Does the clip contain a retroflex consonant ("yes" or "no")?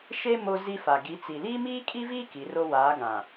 no